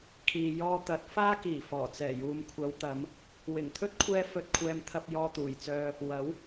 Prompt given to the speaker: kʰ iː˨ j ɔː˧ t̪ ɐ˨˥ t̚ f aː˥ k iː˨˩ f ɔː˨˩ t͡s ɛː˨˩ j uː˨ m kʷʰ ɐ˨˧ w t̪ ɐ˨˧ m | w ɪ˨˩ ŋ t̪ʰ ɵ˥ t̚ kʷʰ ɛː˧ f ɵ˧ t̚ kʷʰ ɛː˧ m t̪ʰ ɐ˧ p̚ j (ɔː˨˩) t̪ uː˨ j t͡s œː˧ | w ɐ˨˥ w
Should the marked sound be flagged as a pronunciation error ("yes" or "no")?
yes